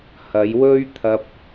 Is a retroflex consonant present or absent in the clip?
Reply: absent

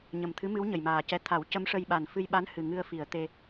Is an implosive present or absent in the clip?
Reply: present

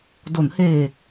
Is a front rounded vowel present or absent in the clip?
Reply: absent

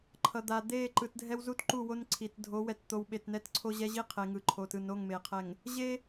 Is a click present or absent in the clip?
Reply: present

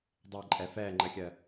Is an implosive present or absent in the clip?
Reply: absent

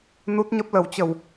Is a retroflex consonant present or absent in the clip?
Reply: absent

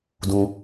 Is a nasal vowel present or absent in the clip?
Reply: present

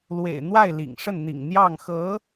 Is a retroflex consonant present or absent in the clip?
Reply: present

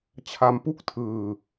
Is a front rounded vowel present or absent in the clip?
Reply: absent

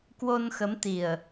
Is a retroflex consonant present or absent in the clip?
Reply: absent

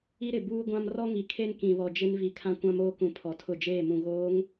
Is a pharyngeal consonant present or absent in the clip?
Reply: absent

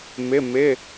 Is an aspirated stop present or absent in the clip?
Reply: absent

